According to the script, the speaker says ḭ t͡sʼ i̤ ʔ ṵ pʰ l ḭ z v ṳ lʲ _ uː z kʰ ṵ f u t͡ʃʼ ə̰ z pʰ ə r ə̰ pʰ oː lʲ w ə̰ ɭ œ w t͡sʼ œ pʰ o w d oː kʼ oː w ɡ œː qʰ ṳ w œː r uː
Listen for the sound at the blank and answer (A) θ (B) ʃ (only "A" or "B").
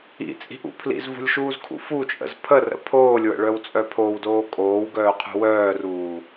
B